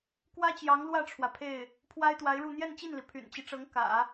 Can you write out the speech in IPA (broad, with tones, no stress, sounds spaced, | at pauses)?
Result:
k w ä˥ t͡ɕ j ɑ˧˥ ŋ l w ä˥˩ ʈ͡ʂʰ w ä˩ pʰ e˥˩ ɪ̯ | pʰ w a˥ ɪ̯ t̪ w a˧˥ ɪ̯ ɻ u˥˧ n̪ j ɛ˥˧ n t͡ɕ i˥˩ n l i˩ pʰ y̰˨˩ n t͡ɕ i˦ ʈ͡ʂ ɤ˧˥ ŋ k ä̰˨˩˦